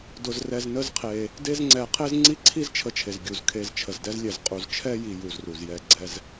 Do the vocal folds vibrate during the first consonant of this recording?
yes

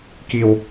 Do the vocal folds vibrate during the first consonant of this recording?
no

